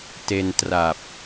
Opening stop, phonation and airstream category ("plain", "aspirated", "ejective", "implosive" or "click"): plain